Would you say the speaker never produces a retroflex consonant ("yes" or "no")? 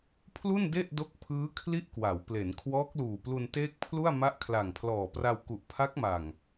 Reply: yes